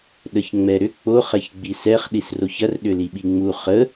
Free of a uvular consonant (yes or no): no